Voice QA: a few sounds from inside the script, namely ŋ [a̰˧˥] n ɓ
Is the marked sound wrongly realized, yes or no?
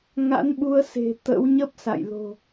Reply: no